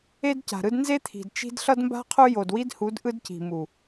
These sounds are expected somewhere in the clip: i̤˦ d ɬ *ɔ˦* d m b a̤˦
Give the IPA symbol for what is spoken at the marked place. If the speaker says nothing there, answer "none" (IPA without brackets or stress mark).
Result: ʌ˦